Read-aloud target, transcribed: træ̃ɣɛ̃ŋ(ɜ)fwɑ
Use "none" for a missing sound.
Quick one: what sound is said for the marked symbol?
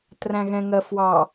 ɜ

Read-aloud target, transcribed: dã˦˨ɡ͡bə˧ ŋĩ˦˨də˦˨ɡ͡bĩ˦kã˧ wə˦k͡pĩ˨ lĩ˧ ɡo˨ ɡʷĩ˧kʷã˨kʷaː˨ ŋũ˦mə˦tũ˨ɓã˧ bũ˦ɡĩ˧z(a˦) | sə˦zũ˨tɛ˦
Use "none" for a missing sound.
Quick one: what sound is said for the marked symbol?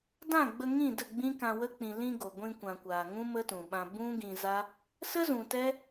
a˦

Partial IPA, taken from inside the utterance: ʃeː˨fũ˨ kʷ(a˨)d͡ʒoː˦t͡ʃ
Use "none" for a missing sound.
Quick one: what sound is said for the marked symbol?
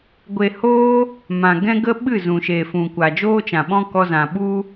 a˨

